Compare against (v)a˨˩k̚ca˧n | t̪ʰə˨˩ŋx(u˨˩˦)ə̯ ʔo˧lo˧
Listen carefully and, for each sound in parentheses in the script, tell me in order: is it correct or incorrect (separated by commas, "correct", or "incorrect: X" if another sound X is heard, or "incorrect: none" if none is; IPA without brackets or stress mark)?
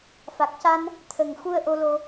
incorrect: f, incorrect: u˧